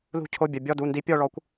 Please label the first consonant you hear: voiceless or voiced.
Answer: voiced